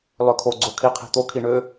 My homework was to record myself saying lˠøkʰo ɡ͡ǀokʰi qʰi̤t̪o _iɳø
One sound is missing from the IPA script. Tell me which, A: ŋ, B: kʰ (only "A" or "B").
B